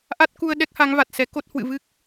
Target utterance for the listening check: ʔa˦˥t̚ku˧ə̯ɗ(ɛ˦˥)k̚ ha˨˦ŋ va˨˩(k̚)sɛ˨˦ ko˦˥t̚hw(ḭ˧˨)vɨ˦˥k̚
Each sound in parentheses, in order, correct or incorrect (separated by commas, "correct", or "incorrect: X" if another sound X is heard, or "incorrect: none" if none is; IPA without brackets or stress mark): correct, incorrect: t̚, incorrect: ɨ̰˧˨